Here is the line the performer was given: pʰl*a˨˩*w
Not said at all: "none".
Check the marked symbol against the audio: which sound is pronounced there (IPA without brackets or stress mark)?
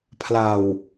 a˨˩